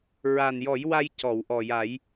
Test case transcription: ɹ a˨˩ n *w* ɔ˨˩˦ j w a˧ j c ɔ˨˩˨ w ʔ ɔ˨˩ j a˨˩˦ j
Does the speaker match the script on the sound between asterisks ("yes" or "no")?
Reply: no